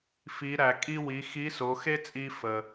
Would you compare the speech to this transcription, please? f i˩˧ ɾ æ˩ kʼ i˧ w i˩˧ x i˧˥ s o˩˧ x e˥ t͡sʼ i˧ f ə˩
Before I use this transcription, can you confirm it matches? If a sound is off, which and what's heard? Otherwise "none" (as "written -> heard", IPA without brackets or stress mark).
none